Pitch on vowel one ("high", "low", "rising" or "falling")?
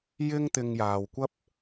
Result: high